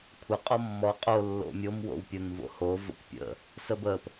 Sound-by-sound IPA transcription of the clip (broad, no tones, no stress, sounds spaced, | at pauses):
kʷʰ ə qʼ ɔ mː ɔ qʼ o lː o̰ mʲ o m w o̰ w pʲ ʊ n v o̰ h o v ə̰ kʷ pʲ ə̰ | s ə b ə p